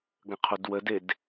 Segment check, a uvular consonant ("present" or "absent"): present